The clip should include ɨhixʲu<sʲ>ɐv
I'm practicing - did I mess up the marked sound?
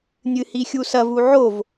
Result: yes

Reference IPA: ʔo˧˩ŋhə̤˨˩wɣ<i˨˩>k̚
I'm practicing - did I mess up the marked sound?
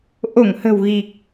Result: no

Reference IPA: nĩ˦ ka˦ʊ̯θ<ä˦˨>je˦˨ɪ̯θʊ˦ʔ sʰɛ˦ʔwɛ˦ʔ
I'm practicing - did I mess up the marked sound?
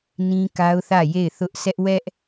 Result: no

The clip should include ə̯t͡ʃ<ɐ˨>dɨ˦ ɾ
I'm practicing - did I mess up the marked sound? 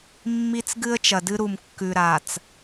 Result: no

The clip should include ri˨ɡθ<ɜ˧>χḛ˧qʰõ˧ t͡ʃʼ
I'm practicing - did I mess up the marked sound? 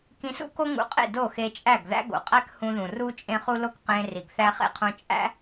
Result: yes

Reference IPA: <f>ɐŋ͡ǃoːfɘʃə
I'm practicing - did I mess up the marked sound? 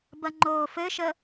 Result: yes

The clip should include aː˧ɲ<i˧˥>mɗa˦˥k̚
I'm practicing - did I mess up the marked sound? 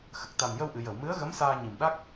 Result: yes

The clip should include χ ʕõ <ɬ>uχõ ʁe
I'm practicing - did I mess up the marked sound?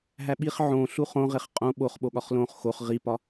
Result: no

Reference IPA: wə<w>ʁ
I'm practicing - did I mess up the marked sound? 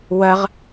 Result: yes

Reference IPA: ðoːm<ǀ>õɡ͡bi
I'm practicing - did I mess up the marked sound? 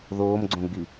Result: yes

